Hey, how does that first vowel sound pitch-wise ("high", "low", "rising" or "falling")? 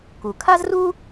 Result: low